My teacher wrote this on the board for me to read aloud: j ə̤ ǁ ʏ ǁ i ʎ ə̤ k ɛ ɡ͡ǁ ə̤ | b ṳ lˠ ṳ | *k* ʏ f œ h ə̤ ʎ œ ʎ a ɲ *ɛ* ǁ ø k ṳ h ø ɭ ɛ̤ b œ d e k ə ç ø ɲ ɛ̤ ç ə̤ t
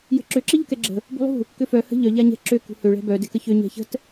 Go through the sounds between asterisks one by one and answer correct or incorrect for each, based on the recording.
correct, incorrect

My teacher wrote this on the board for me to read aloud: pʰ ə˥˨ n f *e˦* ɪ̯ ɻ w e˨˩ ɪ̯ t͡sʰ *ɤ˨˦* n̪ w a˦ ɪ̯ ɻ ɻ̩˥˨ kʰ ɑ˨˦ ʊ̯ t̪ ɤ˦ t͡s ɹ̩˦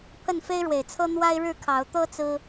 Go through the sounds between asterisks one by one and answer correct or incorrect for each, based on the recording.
correct, incorrect

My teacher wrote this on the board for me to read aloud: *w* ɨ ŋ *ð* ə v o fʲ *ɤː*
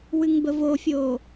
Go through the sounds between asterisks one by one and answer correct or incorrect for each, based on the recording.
correct, incorrect, incorrect

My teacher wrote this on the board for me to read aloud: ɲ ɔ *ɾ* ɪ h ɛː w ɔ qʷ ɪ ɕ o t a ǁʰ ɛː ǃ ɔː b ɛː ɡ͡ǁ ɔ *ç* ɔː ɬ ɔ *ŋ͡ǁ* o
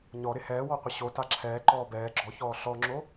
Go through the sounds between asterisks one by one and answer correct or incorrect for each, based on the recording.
correct, correct, correct

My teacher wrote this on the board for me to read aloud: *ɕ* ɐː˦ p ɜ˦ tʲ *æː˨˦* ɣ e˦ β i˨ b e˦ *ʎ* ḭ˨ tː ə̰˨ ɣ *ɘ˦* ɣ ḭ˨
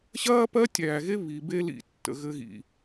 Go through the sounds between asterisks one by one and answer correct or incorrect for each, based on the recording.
correct, incorrect, incorrect, correct

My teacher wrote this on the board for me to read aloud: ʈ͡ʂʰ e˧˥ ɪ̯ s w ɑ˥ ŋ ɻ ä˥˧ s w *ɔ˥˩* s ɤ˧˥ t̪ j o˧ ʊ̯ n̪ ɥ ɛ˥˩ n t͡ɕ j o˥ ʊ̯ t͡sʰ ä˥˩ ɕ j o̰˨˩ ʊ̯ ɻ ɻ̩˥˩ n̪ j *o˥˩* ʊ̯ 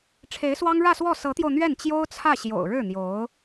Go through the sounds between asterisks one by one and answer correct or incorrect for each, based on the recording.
correct, incorrect

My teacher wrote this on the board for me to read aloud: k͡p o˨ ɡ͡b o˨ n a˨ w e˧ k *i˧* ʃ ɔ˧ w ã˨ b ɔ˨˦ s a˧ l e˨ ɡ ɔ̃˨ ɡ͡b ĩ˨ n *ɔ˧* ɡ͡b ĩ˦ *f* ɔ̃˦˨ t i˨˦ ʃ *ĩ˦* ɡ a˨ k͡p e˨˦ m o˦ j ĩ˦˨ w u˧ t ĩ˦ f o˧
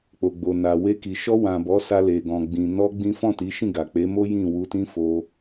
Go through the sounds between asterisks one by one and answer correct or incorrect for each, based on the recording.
incorrect, correct, correct, incorrect

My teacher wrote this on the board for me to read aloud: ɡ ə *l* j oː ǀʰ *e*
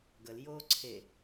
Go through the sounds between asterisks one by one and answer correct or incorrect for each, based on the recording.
correct, correct

